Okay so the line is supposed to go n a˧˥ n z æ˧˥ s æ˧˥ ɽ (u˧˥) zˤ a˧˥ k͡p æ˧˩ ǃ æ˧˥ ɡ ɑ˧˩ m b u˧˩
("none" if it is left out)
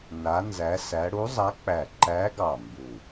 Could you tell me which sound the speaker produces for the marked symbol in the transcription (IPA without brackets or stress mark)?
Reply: u˧˥